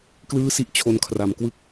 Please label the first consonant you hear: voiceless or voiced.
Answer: voiceless